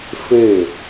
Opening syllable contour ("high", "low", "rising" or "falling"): falling